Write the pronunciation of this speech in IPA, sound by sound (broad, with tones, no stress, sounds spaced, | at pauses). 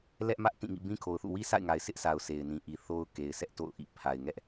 l ɛ˦ ʔ m ä˦ ʔ t ĩ˦˨ ŋ ḭ˦˨ b ĩ˦ kʰ o˨ ʊ̯ θ ṵ˦˨ w i˦ sʰ a̰˦˨ ɪ̯ ŋ a˨ ɪ̯ sʰ ɪ˦ ʔ s a˨ ʊ̯ s e˨ ɪ̯ n ĩ˨ ʔ i˨ θ o˦ ʊ̯ k e˨ ɪ̯ sʰ ɛ˦ ʔ t o̰˦˨ ʊ̯ ʔ ḭ˦˨ pʰ a˨ ɪ̯ ŋ ɛ˦ ʔ